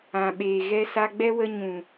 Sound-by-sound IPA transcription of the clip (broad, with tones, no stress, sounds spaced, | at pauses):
ã˨ ɓ eː˨ ɣ ɛ˧ s a˧ ɡ͡b ɛ˦ w ə˧ ɲ ũ˨